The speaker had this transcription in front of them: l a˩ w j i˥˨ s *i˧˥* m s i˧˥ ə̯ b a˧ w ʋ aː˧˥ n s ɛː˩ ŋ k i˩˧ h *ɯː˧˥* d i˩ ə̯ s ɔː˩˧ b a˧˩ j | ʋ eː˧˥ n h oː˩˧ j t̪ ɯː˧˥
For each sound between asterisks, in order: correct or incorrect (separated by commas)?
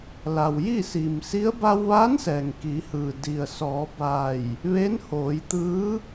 incorrect, incorrect